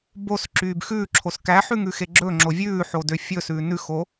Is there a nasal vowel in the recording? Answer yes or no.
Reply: no